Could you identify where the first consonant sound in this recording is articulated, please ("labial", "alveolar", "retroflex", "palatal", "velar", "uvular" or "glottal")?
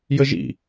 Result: palatal